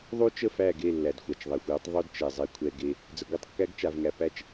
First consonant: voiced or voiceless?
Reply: voiced